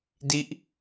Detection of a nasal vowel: absent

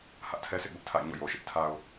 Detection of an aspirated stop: present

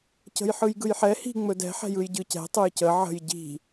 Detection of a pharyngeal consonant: present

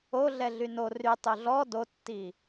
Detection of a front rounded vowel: present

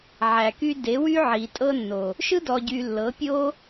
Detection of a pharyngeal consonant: present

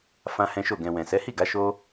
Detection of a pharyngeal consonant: absent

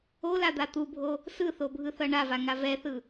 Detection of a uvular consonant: absent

